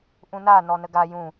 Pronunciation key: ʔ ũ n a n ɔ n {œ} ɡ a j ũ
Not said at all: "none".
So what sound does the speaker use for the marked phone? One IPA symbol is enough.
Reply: ə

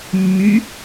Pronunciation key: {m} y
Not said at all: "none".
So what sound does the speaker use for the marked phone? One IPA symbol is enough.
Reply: mː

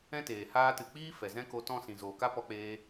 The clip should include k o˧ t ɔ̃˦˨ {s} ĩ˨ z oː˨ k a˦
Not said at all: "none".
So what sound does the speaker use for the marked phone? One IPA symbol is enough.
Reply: s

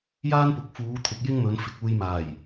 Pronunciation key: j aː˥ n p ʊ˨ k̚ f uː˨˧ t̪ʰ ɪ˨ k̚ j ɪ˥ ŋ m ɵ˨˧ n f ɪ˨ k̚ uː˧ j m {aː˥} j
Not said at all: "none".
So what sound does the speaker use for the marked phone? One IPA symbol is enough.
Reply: aː˨˩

